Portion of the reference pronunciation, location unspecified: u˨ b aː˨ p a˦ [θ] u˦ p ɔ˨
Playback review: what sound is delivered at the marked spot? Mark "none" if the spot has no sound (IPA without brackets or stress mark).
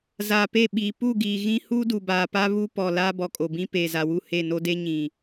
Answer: β